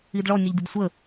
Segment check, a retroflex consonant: present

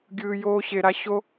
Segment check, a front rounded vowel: absent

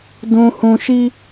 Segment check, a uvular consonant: absent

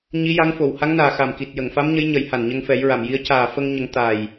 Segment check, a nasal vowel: absent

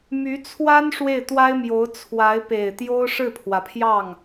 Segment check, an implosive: absent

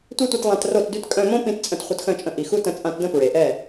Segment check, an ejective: present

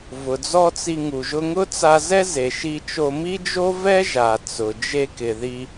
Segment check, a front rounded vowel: absent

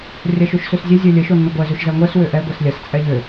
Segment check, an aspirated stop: absent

